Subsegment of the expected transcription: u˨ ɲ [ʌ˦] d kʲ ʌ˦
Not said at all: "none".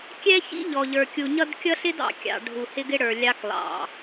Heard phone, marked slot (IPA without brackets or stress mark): ʌ˦